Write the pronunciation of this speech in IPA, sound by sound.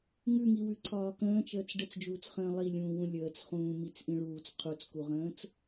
ŋ ʉ ŋ i w ʉ ǀʰ ɒː k ə̃ː t͡ʃ əː t͡s ɖ ə t͡s d͡ʒ uː t͡s χ ə̃ː lˠ i lʲ ũː w ũ lʲ əː t͡s χ ũː m i t͡s ʔ ĩ ɭ uː t͡s qʰ u t͡s k u ʁ ə̃ː t͡s

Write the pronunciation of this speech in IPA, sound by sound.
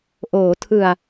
ʔ oː˩˦ tʰ ɯ˨˩ a̯

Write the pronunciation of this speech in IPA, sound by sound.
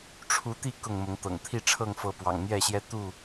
ʈ͡ʂʰ u˨˦ t̪ i˥˨ k ʊ˥˨ ŋ m ʊ˨˦ ŋ t̪ ɤ̰˨˩ ŋ t̪ʰ i˥˨ ʈ͡ʂʰ ɤ˥˨ ŋ f ɤ˨˦ p w ɑ̰˨˩ ŋ n̪ j ɛ˥˨ ɕ j ɛ˦ t̪ u˥˨

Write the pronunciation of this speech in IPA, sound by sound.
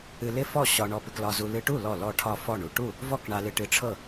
ɨ˧ l ɪ˥˩ f ɔ˥˩ ɕ ɒ˧ ɳ ɔ˧ p ɪ˧ k l ɒ˧ z u˧ l ɨ˧ ʈ u˥˩ l ɔ˥˩ l ɔ˥˩ ʈʰ ɒ˥˩ f ɔ˥˩ ɳ u˥˩ ʈ u˥˩ | v ɔ˥˩ k ɳ a˧ l ɨ˧ ʈ ɨ˧ ʈ͡ʂʰ ɤ˥˩

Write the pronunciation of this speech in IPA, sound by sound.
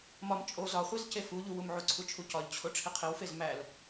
m ɒ m t͡ʃʼ o z ɒ χʷ i z c e f u ʎ u w u m ʕ u ǀʰ u t͡ʃʰ u c ɒ ʎ t͡ɕʰ o ʈ͡ʂʰ i qʰ i w f e z m æ l

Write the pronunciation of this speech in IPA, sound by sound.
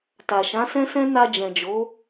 t a˨ ʃ ã˨˦ s ɛ̃˦ s ɛ̃˦ n a˧ d͡ʒ ɛ̃˨ d͡ʒ o˨˦

